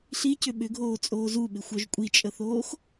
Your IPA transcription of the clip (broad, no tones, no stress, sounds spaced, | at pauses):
ɬ i c ʏ ɓ ʏ ɡʱ oː t͡sʼ oː z u ɓ ɪ xʷ œ ʒ kʷʼ i t͡ʃʼ ə θ oː x